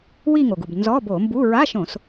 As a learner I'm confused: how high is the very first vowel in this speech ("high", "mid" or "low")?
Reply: high